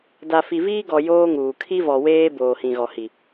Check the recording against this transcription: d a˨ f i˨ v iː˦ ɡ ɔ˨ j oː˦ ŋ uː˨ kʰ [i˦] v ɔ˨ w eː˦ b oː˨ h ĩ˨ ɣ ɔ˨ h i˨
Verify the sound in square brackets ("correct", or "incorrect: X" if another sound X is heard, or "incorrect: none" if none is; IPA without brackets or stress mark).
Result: correct